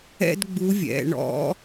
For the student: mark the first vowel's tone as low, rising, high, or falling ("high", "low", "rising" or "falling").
high